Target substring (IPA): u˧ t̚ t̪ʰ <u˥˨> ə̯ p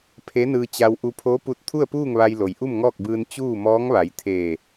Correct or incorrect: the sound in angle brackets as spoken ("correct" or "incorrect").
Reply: correct